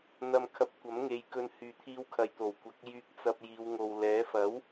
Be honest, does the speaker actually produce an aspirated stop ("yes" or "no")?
yes